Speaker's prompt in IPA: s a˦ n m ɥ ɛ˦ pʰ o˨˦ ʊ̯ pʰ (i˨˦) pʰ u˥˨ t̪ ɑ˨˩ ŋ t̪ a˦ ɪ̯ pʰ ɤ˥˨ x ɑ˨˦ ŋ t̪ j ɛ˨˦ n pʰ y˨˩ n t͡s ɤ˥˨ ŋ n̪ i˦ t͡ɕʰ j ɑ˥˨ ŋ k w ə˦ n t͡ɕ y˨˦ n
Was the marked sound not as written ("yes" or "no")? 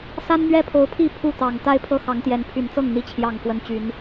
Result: yes